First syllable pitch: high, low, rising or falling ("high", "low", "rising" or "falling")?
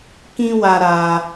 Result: high